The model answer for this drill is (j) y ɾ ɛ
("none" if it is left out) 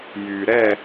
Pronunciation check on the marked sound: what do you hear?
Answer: j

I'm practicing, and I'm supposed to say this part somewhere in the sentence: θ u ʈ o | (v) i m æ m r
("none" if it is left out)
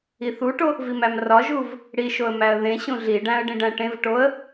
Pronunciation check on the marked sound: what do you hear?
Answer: v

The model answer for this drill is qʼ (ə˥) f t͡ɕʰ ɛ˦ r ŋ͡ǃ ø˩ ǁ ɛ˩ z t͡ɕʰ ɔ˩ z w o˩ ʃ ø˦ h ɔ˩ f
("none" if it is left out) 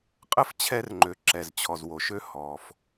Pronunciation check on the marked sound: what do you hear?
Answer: ə˥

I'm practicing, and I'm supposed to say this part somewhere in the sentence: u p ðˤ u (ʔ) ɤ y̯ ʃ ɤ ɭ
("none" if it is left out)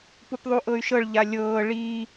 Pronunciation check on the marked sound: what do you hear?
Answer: ʔ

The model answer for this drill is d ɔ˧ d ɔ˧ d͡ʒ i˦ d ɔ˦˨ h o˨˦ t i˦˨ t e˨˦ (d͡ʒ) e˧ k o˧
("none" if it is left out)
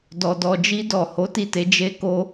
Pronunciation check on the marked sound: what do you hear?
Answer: d͡ʒ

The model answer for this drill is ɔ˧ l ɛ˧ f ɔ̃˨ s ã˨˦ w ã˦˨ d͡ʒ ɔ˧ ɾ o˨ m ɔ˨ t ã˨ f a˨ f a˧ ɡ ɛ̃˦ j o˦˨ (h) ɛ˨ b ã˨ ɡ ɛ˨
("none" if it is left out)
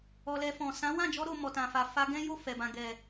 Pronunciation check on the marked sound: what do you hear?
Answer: f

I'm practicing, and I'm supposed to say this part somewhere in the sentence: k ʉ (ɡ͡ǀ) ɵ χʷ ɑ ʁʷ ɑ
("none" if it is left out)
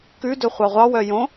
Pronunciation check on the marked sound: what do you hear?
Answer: d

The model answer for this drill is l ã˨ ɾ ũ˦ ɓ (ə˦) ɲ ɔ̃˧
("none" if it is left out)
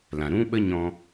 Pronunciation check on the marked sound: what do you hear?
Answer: ə˦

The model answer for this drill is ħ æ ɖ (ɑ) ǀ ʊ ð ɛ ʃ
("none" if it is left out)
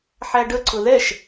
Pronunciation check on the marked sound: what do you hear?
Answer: ə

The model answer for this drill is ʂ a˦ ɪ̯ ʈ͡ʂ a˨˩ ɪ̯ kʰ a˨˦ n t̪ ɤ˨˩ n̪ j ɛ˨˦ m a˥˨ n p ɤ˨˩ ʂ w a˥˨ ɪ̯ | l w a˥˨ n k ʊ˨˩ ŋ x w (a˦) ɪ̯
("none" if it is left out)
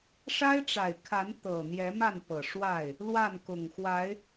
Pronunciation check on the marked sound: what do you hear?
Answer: a˨˦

